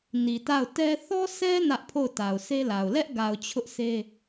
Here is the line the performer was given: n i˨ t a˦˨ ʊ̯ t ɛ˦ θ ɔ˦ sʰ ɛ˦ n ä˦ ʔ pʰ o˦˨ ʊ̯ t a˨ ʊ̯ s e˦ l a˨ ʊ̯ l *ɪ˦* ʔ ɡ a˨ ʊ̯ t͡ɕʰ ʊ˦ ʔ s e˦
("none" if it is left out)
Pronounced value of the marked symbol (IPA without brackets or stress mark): ɛ˦